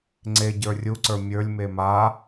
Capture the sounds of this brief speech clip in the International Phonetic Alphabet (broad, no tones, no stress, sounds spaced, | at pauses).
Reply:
ŋ͡ǀ e ɟ ə˞ rʲ u ǀ ə˞ mʲ ə˞ lʲ m e m a